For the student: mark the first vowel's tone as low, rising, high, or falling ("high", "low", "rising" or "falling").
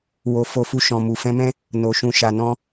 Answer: low